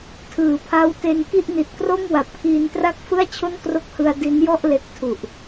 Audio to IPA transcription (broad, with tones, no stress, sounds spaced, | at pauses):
tʰ ɯː˩˦ pʰ a˦˥ w t e˧ n k i˥˩ ʔ n i˨˩ t̚ k r o˥˩ m w a˨˩ p̚ kʰ iː˧ n t r a˥˩ k̚ f ɯ˥˩ a̯ t͡ɕʰ o˥˩ n k r o˦˥ k̚ h ɯ˧ a̯ d i˦˥ n j ɔ˥˩ ʔ l e˦˥ k̚ tʰ u˨˩ ʔ